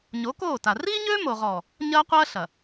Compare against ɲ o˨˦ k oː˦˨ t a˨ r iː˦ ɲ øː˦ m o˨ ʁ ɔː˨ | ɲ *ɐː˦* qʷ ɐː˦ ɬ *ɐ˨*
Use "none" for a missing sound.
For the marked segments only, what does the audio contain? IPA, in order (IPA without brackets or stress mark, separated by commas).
ɐː˦, ɐ˨